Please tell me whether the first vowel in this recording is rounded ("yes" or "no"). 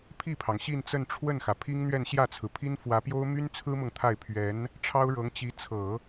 no